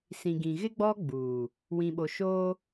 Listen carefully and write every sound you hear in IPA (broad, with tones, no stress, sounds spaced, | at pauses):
s ĩ˨ ɡ ĩ˨ ɣ ɪ˦ ɡ͡b ɔ˦ ɡ͡b uː˨ | w ĩ˨ ɓ o˨ ʃ oː˦